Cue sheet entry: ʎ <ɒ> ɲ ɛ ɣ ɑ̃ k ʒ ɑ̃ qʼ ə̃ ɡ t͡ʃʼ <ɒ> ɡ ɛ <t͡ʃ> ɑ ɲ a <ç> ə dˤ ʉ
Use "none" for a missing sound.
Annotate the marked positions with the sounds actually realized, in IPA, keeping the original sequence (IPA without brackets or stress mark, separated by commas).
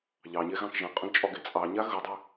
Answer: ɑ, ɒ, t͡sʼ, ɣ